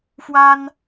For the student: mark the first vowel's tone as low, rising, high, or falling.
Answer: high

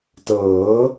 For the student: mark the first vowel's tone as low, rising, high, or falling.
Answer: rising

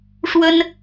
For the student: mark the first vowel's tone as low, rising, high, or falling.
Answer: high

